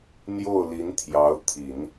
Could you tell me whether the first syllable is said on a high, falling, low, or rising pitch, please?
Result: falling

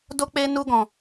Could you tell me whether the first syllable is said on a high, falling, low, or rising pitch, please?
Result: high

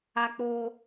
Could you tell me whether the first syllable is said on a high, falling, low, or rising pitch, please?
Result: high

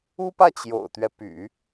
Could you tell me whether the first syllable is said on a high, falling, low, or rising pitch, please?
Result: high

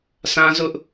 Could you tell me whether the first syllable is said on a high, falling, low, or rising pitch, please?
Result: high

